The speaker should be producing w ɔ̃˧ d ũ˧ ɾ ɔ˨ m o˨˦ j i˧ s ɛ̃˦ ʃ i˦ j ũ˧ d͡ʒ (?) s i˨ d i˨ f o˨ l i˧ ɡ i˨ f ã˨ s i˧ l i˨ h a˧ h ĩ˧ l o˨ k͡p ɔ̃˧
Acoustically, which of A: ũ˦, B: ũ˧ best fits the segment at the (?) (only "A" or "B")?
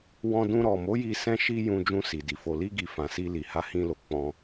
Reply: B